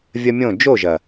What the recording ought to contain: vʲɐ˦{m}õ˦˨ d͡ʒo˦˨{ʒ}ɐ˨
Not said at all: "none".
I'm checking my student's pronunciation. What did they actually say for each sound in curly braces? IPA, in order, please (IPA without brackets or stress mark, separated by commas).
mʲ, ʒ